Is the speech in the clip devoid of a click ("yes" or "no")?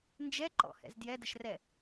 no